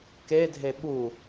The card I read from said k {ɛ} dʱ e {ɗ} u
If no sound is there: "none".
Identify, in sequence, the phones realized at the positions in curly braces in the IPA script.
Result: e, ɓ

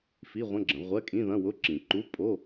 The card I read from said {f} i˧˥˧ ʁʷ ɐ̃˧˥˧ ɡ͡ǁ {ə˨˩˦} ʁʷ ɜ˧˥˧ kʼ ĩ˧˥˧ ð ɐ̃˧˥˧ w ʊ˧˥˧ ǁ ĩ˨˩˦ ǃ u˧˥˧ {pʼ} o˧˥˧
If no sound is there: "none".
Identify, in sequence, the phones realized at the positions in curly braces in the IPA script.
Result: f, ə̃˨˩˦, pʼ

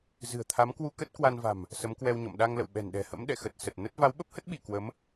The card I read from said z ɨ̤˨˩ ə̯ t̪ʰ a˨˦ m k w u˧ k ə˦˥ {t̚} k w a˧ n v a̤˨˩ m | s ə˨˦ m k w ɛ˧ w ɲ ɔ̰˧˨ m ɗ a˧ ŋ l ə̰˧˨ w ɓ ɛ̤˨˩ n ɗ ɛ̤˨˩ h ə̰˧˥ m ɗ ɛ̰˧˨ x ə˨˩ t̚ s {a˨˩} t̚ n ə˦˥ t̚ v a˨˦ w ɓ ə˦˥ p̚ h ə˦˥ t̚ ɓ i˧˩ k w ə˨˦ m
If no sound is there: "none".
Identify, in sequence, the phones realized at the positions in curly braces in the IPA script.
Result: t̚, ə˨˩

